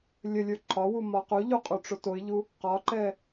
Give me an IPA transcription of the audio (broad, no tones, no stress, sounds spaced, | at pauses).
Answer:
lʲ ə lʲ ə˞ ǃʰ ɒ w u m ɒ q u ʎ u qʼ u ʈ͡ʂ o t o ɪ̯ ʎ u | q ɒ ǃ ɛ